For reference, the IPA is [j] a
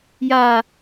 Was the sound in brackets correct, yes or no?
yes